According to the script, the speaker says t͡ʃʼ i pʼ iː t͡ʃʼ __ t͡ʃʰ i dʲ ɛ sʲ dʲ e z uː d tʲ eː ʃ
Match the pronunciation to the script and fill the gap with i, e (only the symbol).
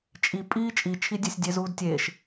i